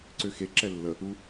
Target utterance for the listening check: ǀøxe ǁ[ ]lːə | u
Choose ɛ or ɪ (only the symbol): ɛ